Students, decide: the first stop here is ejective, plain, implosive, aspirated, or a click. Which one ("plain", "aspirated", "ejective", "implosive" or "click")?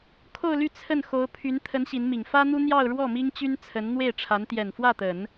aspirated